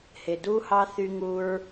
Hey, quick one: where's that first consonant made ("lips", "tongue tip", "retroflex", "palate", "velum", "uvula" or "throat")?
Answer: throat